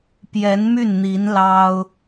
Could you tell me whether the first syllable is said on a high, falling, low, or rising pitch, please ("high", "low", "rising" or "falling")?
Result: rising